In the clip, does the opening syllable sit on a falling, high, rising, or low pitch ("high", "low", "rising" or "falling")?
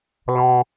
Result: high